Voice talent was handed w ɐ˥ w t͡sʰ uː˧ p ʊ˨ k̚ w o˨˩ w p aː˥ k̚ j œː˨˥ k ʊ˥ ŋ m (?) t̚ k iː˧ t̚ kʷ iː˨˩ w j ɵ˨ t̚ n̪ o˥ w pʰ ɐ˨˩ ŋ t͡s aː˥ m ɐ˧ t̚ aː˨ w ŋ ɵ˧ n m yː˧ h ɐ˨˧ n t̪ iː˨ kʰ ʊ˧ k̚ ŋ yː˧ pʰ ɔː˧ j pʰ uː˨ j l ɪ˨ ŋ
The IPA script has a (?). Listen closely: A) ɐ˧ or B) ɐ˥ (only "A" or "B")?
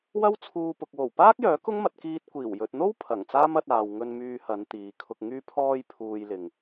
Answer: A